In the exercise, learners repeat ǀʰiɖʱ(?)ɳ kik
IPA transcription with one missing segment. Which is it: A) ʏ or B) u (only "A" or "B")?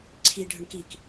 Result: A